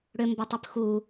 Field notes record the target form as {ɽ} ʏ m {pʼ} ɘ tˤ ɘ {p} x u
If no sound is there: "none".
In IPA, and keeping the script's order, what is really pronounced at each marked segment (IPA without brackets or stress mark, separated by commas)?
ɽ, b, p